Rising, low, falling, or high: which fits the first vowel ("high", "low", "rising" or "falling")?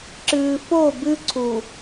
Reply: low